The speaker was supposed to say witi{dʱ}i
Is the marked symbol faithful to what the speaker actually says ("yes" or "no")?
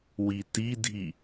yes